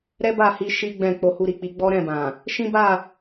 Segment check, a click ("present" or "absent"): absent